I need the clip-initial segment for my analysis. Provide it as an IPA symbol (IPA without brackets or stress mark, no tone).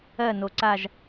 ɜ